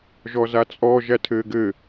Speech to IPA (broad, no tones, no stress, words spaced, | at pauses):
ʒɔzat͡sʼɔ ʒætʰɘːɡɘ